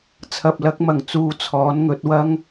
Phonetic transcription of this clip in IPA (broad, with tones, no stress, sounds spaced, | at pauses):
t͡sʰ ɐ˨ p̚ l ɐ˨˥ k̚ m ɐ˨˩ ŋ t͡s uː˨ t͡sʰ ɔː˨˥ n ŋ ɵ˨˥ t̚ w ɐ˥ ŋ